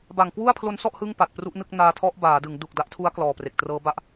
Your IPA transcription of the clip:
b a˨˩ ŋ k w u˥˩ a̯ pʰ l o˦˥ n s ɔ˥˩ ʔ h ɯ˥˩ ŋ p a˨˩ t̚ p r u˦˥ ʔ n ɯ˥˩ k̚ n aː˧ tʰ ɔ˦˥ ʔ b aː˩˦ d ɯ˩˦ ŋ d u˨˩ k̚ d a˦˥ ʔ tʰ u˦˥ a̯ k l ɔː˨˩ p r e˨˩ k̚ t r ɤː˦˥ b a˥˩ ʔ

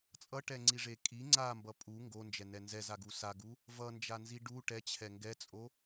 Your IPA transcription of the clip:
t͡sʼ ʌ ʈ ɛ ŋ͡ǀ i ʐ e kʼ i ŋ͡ǀ a m b ʌ pʼ u ŋ ɡ o n d͡ʒ ɛ n ɛ n z ɛ z a ɡ u s a ɡ u | v ʌ n d͡ʒ a n z i ɖ u ʈ ɛ t͡ɕʰ ɛ ŋ ɡ ɛ t͡sʼ o

